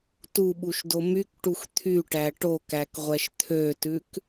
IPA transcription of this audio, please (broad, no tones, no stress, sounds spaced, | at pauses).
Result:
t u ɓ u ʃ d o m y k ʈ u x t̪ʰ y ʈ æ ʈ o k æ k ʁʷ ɛ ʃ t̪ʰ ø t ʉ k